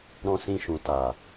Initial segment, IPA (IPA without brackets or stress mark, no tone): ɾ